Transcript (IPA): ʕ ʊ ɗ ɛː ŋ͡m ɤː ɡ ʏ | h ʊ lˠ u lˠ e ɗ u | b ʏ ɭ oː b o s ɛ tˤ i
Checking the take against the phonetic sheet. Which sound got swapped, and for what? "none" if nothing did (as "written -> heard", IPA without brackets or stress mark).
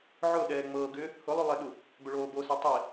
none